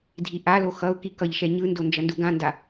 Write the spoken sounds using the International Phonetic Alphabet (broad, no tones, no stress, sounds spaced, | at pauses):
dʱ i ʔ a l o x ʌ ʊ̯ k i k ʌ ʎ ʃ ɛ ɲ ɯ n d o n d͡ʒ ʌ n d u ɡ ã n d a